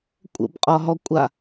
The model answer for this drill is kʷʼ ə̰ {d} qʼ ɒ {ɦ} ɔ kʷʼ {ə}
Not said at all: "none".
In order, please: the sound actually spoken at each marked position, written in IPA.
b, ɦ, a

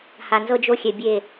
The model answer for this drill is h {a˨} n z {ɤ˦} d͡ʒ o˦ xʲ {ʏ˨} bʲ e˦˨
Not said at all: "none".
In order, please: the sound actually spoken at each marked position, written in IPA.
a˨, ɤ˦, ɛ˨

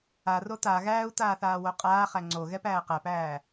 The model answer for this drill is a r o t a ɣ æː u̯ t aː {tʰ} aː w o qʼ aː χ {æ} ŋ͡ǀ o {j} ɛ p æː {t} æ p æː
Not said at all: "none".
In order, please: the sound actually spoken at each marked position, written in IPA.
θ, æ, ɣ, q

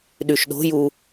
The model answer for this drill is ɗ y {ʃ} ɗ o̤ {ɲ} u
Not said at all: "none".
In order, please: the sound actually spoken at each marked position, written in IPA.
ʃ, j

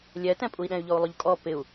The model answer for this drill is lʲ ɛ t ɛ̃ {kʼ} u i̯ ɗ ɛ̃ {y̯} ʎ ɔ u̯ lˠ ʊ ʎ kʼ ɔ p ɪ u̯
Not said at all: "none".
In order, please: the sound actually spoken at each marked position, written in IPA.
pʼ, y̯

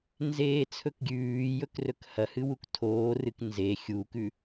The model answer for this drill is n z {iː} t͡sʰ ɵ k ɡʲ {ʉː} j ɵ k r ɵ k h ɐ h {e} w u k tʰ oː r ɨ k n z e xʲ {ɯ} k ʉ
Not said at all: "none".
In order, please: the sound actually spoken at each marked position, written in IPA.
eː, ʉː, ɨ, u

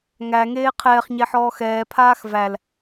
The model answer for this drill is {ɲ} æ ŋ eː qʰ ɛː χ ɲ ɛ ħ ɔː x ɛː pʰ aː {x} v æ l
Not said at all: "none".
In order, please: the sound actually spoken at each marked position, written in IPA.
ŋ, x

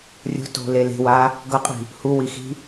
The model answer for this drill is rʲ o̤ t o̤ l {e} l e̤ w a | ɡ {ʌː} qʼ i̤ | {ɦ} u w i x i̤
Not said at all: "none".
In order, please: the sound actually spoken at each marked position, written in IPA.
e, ʌ, h

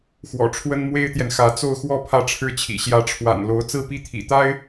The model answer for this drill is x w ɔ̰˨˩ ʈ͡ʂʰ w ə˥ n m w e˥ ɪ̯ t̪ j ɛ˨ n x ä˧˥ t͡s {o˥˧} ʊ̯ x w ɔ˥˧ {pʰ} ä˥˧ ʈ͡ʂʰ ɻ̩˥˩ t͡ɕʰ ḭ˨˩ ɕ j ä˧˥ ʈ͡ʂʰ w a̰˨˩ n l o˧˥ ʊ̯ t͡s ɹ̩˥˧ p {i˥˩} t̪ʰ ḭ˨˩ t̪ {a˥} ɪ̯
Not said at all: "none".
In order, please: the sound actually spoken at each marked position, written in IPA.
o˥˧, pʰ, i˥˩, a˥

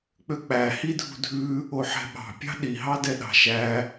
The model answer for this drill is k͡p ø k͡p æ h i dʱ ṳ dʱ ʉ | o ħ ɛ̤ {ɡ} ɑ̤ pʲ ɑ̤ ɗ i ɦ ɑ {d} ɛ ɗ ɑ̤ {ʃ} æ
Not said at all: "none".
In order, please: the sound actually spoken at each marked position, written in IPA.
ɓ, d, ʃ

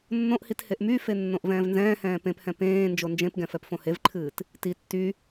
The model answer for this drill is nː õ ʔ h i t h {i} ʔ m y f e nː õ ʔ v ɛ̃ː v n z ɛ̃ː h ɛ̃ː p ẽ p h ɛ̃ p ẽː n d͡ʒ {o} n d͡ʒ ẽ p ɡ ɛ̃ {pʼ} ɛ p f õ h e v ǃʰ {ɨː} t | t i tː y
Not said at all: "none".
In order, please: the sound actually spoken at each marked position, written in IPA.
e, o, f, ɨː

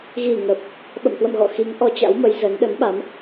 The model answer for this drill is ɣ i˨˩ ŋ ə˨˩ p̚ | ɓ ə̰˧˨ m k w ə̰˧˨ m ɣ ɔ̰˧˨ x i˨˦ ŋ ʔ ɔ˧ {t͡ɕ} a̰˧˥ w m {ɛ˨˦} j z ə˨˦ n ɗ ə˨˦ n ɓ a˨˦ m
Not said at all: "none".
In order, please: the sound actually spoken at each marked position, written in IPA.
t͡ɕ, ə˨˦

